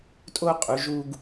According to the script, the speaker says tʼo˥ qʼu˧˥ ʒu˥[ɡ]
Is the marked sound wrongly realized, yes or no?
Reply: no